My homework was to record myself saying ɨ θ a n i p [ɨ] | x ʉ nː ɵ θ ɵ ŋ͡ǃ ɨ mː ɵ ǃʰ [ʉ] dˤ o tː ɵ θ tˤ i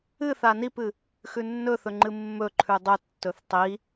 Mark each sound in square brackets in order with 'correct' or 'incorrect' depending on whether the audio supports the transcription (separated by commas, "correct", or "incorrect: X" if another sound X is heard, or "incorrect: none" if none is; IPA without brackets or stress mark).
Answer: correct, correct